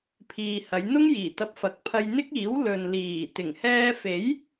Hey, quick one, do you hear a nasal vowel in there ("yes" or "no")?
no